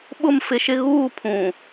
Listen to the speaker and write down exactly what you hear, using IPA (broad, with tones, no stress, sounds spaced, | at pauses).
ɓ ʊ˦˨ m f ɪ˨˦ ʃ ɪ˦ ɣ uː˦˨ pʰ ũ˨